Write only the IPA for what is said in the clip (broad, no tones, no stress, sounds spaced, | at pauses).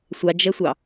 sʷ a d͡ʒ ɛ sʷ ɑ